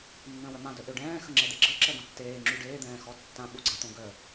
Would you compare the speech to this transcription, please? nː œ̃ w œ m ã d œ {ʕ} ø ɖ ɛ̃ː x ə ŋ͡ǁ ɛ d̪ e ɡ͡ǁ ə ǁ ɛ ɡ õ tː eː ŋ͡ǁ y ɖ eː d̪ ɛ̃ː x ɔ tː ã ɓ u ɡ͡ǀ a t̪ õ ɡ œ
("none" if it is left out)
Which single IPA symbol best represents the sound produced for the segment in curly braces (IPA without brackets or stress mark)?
ʔ